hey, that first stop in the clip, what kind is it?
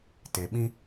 plain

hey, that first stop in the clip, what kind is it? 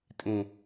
ejective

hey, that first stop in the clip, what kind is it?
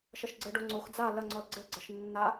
click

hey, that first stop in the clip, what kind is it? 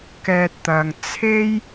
plain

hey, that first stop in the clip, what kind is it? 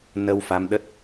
implosive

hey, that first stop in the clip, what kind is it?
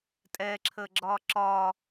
ejective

